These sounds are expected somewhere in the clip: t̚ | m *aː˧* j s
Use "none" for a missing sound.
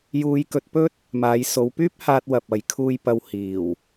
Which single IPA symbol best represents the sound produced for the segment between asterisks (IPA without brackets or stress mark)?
aː˨˧